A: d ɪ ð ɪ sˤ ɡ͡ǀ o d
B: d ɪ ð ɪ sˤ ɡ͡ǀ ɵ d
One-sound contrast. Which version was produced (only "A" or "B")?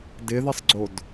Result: A